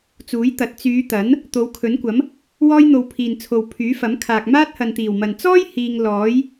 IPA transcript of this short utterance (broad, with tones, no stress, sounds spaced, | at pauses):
t͡s uː˨˥ j t̪ ɐ˨˥ t̚ t͡s yː˨˧ t̪ ɐ˨˥ n | t̪ o˨˧ w kʰ ɵ˨˥ n kʷ ɐ˨˥ m | w ɔː˥ j n̪ o˧ w pʰ iː˨ n t͡sʰ o˨ w pʰ yː˨˥ f ɐ˨˥ m kʰ aː˨ k̚ m aː˥ t̚ h ɐ˨ n t̪ iː˨˩ w m ɐ˨ n t͡s ɔː˥ j h iː˧ ŋ l ɔː˨˥ j